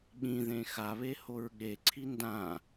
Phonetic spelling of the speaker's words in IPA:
ɠĩðẽ xaβe hoɹɠeǀʰi ndã

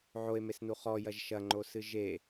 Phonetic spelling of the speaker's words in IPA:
ʕoe̯mesnu χɔjɐʒ ʃɐŋ͡ǃosɨ ʒe

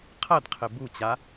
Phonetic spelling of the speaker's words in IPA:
qʰɐdqʰɘ but͡ɕa

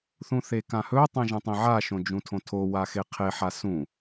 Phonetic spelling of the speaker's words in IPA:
θũθekãhɵ tˤẽʒɐ̃tˤĩʕa ʃõd͡ʒũtʰõtʰo waxeqʰe ħasũ

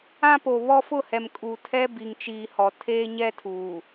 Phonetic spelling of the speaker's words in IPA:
ã˦po˨βɔ˦ fʊ˦˨hɛ˨m kʼu˨tʰɛ˦ bi˨ŋt͡ʃiː˨hɔ˨ tʰeː˦ɲɛ˦tʰuː˨

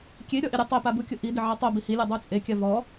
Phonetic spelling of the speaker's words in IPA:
kʲe ɾʲɔʔiɾʲʊ tˤepabukʲʊ ʔi dɪʕatˤobi hilʲɔ dˤot͡sʼe kʲavɔ

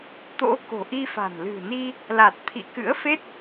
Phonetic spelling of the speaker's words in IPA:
t̪o̰˧˥ ko̤˨˩ʔi˧fa̤˨˩n lɨ̤˨˩ni˧ | la˨˩t̚t̪ʰḭ˧˨kɨ̰˧˥ə̯fe˦˥t̚

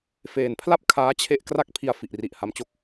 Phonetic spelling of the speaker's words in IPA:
feː˨˩npʰla˥˩p̚ kʰaː˦˥t͡ɕʰe˦˥ʔ kra˥˩k̚pʰi˧a̯ fi˨˩ʔri˨˩ʔha˧mt͡ɕo˦˥k̚

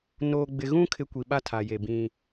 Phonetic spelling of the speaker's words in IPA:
noː˨ɡ͡bɪ˨ɣũ˦ kʰɪ˦ kʷi˨ɓa˦tʰa˨je˨ bĩ˦

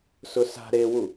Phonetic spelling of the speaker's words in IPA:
sʊsa̤ ɾewu

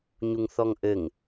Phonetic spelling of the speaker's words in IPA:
ɲuŋθɔŋʔɘŋ

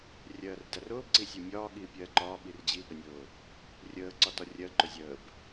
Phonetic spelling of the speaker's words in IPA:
rʲɜːrdærʊːb ǀisʲəːmʲɒː ɠiːpʲɜːǃɒː ɓird͡ʑi ɠənʲʊː | rʲəː ǀɒtɒrʲɜ ǃʊzʲəːb

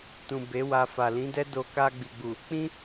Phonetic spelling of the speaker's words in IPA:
tũ˨ be˨˦wa˧ fa˨lĩ˨˦dɛ˦ do˧ ka˧ ɡ͡bi˨ɡ͡bu˨ | k͡pĩ˦

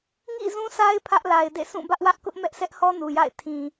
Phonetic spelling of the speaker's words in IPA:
ŋḭ˦˨ zũ˦sa˦ɪ̯ pʰä˦ʔla˨ɪ̯dḛ˦˨ sũ˦˨ bä˦ʔwä˦ʔkʊ˦ʔmɛ˦ʔ sɛ˦ʔhɔ˦ nu˨ja̰˦˨ɪ̯ tʰĩ˨

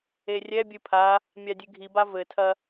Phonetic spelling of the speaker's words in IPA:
erʲɛbʲɨ pʰa | mʲadʲɨɡʱiba vɘtʰɐ

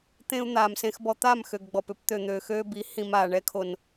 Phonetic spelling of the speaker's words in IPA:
t̪ẽ˦u̯ n̪aː˨msẽ˧xbɔ˧t̪a˦˨m xø˨ɡɡ͡bɔ˨p ʏ˧pt̪ø˨n̪øː˨ xøː˧bi˨˦ hĩ˨m aː˨ ɳɛ˧kʰo˨n

